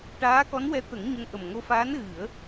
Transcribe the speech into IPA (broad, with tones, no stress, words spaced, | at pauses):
ʈaː˧˥kɔ˧˥nwɛ˧˥ t̪ə˨˩˦ŋɲə˧ŋ ʔə˨˩mŋo˧faː˧˥n ɣɨ˨˩˦ə̯